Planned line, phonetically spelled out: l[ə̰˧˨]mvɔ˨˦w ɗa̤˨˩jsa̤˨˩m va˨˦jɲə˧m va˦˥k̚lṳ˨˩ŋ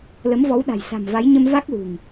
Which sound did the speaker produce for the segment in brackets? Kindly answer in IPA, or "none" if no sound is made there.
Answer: ə˨˦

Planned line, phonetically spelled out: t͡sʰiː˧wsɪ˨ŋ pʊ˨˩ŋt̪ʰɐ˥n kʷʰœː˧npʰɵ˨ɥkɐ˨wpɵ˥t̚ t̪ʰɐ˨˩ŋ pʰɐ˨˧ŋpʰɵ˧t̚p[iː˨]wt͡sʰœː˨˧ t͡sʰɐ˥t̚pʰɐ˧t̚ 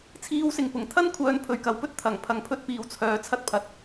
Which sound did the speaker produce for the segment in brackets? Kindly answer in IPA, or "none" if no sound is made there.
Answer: iː˨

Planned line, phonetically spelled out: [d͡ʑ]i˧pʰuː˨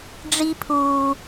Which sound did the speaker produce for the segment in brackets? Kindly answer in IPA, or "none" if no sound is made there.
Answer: ɖ͡ʐ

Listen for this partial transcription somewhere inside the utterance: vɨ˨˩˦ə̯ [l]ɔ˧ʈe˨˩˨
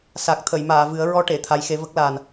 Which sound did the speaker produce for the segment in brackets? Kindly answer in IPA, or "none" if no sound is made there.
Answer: ɹ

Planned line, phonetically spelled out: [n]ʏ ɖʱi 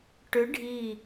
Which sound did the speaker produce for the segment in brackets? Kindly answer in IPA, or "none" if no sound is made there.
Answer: ʈ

